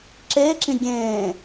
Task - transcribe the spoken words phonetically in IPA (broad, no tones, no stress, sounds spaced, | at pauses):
ǁ eː ǁ ĩ ɡʲ ẽː